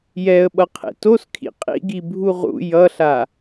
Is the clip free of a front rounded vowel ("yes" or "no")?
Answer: yes